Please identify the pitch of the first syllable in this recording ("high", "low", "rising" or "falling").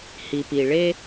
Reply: low